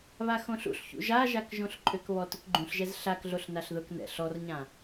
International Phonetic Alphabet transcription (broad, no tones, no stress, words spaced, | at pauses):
βaxõɬṵɬçṵ ʒaʒak ʒõɬǃʼʏkβɔ tʊkɡ͡ǃũɬʒɛz ɬakɮoɬ naɬðʊknɛ̰ ɬɔrɲã